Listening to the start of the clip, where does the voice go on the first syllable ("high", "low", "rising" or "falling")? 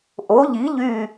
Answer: rising